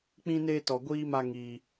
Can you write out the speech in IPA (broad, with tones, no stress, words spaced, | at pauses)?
k͡pĩ˦neː˦tɔ˧ ɡʷiː˦ma˦ ŋiː˦